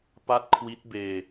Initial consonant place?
labial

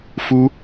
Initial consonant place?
labial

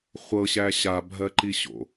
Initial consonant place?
uvular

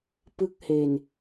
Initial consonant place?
labial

